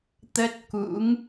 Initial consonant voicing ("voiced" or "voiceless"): voiceless